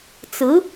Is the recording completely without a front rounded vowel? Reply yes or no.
yes